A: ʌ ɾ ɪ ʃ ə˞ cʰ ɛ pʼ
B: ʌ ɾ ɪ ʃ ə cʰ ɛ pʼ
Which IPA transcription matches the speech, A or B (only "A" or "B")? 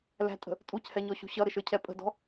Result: A